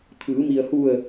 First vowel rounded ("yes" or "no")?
no